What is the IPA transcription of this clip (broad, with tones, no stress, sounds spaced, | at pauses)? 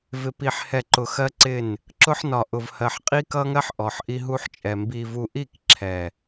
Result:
v ɪ˨ p i˨ ħ h ɛ˨ ǃ ʊ˨ x ɜ˦ ǀ ɪ˦˨ n | ǁ ʊ˦ ħ n ɒ˨ ʔ ʊ˨ v h ɜ˨ ħ qʼ i˦ k ʌ˦ ŋ ɜ˦ ħ ʔ ɔ˨ ħ ʔ i˦ ɦ u˦ ħ t͡ʃʼ ɛ˨ m b i˨ v u˨ ʔ i˦˨ k ǁʰ ɛ˨